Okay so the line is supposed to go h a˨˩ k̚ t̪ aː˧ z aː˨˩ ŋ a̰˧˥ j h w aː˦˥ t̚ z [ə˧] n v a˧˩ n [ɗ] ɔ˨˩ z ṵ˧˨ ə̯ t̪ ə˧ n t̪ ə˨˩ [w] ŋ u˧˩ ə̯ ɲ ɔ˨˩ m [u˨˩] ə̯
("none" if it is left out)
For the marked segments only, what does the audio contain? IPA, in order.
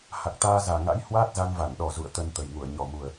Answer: a˧, ɗ, j, u˨˩

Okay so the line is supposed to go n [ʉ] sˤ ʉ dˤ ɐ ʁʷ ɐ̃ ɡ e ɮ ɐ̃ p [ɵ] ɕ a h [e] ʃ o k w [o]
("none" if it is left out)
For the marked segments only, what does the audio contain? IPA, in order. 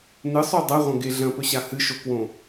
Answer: ɨ, ɵ, ɨ, õ

